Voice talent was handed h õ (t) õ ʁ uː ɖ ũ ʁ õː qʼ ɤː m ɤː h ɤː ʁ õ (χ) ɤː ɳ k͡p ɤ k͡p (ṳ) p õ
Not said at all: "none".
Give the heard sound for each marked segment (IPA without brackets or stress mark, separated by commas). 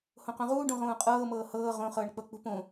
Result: q, χ, ṳ